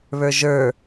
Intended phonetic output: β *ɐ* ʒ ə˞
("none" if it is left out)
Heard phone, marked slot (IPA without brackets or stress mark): ə˞